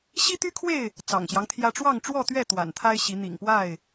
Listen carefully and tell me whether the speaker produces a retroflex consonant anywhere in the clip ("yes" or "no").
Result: yes